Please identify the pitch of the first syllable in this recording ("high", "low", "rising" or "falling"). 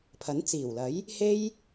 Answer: rising